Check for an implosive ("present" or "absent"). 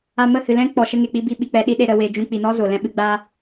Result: present